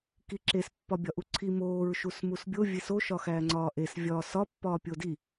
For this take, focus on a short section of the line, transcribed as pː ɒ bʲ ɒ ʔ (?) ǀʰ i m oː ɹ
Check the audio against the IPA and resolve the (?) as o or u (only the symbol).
u